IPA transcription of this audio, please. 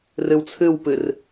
r ɨ w t͡sʰ ɨ w p ɨ r

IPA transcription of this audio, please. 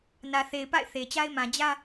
n ä˨ θ e˨ ɪ̯ p a̰˦˨ ɪ̯ θ e˨ t͡ɕ a˦ ɪ̯ m ã˨ d͡ʑ ä˦

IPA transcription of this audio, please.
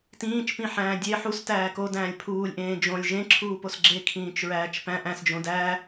t ĩː t͡ʃ p ĩ ħ æ̃ː dʲ e ħ u s t æː k o d æ̃ː lʲ pʰ uː lʲ ʔ ẽː d͡ʒ õ lʲ ʒ ẽ ǁʰ uː p o s ɡ͡ǁ e kʰ ĩː t͡ʃ ɹ æː t͡ʃ p æ̃ ʔ æ̃ s d͡ʒ õ d æ

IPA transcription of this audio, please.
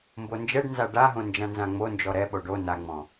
m b o n d͡ʒ ɛ ɖ n z a ɖ a ɦ õ n d͡ʒ ã n z ã ŋ͡m o n d͡ʒ ɔ ɾ ɛ ɓ o ɖ o n a ŋ͡m ɔ̃

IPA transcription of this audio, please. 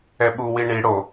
ɛ ɓ u w i ɳ i ɽ o

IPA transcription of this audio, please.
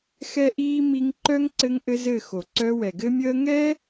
x ɛ˦ ʔ iː˦ m i˧ ŋ ǃ œ˦ ŋ ǀ ɘ˦ ŋ ʔ ɘ˦ z ɘ˦˨ x o˨ ǀ œ˧ w ɛ˨ ɡ ɘ˦ mʲ əː˦ ŋ ɛ˦

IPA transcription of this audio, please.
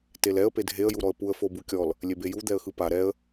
t e l ɛ ə̯ p e dʱ e ə̯ j u ɾ ɔ ə̯ p u ə̯ f o b u kʲ ɔ l | lʲ e b e j u d̪ ɛ ə̯ x ɯ p a ɾ ɛ ə̯

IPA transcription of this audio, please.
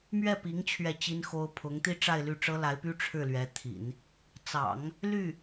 m ɥ ɛ˥˩ p i˧˥ ŋ t͡ɕʰ ɥ ɛ˥˩ t͡ɕ i˥ n x o˥ ʊ̯ pʰ ʊ˧˥ ŋ t̪ i˥ ʈ͡ʂ a˥˧ ɪ̯ l y˥˩ ʈ͡ʂ ɤ˥ l a˧˥ ɪ̯ p y˥ ʈ͡ʂʰ ɻ̩˥˩ l ɥ ɛ˧˥ t̪ʰ ḭ˨˩˦ n | t͡s ɑ̰˨˩˦ ŋ | l y˥˩

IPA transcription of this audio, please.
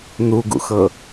n̪ u ɡ ṵ x ɤ

